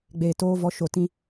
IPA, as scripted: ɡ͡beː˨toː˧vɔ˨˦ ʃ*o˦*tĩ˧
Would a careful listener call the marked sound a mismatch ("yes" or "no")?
yes